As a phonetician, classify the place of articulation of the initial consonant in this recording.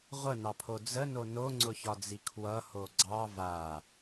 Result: uvular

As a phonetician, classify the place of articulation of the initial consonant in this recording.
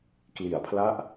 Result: velar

